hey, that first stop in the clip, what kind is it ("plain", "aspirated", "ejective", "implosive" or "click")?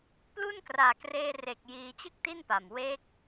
plain